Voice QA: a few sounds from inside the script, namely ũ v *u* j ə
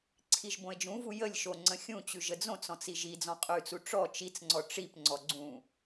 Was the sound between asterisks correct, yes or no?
yes